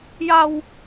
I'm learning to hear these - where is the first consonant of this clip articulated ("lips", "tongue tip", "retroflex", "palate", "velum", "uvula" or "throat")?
palate